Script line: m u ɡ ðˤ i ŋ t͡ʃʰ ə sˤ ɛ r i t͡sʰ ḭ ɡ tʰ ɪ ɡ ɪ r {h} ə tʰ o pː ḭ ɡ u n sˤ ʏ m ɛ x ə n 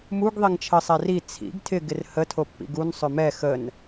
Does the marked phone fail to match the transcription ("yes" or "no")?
no